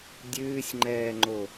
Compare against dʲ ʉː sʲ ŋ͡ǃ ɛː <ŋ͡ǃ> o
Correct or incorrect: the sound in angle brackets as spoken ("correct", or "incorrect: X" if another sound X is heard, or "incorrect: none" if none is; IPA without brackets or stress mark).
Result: correct